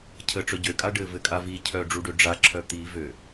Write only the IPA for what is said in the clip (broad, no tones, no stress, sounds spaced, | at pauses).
cʰ ə ʈ͡ʂ œ ɟ ø kʼ a ɖ ɘ v ɘ kʼ a v i cʰ œ ɖ͡ʐ u ɖ ø ɖ͡ʐ a ǁʰ œ t̪ i v ø